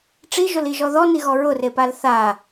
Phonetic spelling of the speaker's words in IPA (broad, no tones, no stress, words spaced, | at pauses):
ʈ͡ʂiʒoliʒɔ ðɔniɣɔ ɹʊrepal θa